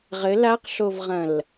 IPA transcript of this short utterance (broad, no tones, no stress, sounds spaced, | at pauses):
ʁ ɘ l a q ɬ o v ʁ ɐ̃ l